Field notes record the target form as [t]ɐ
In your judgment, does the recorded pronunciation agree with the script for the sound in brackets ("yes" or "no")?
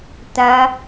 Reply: yes